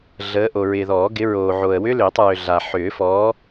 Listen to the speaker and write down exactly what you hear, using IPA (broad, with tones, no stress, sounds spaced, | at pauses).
ɮ əː˨˦ ʔ o˨ ɹ ɪː˨ ð ɔː˨˩˦ ɡ ɪ˨˦ ɹ oː˨ ʕ o˨ ə̯ w ʏ˦˥ l ʏː˨˩˦ tˤ ɹ ʏ˨ ɮ a˨ ħ ʏː˨˩˦ f ɔː˨˦